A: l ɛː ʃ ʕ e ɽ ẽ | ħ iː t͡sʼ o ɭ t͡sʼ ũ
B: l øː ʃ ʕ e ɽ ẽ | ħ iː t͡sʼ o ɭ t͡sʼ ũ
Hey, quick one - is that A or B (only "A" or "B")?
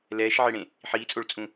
A